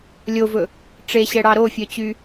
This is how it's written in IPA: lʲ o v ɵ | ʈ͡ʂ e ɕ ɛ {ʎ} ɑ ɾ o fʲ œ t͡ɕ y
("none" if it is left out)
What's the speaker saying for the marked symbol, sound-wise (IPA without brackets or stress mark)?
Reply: ɽ